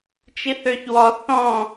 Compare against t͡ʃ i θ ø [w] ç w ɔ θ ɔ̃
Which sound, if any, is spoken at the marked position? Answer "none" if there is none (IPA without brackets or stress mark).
none